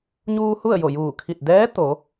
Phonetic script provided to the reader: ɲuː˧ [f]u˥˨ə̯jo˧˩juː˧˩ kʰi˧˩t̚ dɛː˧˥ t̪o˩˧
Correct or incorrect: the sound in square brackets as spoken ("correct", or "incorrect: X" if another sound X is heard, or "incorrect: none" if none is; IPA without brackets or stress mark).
incorrect: h